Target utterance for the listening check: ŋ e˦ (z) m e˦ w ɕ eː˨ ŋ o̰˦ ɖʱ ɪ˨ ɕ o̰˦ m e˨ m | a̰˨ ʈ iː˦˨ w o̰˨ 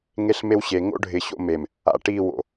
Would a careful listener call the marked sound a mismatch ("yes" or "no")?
yes